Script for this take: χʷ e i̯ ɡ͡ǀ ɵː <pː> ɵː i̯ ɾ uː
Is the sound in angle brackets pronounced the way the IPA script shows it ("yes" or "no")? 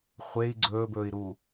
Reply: no